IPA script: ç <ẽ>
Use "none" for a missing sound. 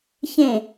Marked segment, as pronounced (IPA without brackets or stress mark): ẽ